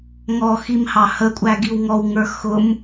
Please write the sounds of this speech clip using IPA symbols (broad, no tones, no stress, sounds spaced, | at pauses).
ŋ ɔ x i m h ɑ h ə kʷʼ æ ɡ i w ŋ ɔ w ŋ ə˞ x ʊ m